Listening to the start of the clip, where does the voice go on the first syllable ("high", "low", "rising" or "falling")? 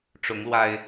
rising